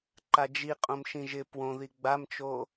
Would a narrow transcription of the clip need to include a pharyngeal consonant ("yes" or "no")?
no